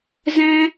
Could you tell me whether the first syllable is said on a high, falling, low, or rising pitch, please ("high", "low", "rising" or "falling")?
high